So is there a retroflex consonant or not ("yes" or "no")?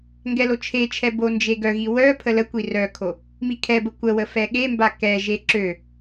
no